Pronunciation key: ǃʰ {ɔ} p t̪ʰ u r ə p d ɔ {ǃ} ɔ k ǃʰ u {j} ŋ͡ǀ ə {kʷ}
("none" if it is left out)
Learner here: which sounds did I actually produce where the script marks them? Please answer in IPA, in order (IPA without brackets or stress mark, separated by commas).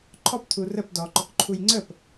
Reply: ɔ, ǃ, j, p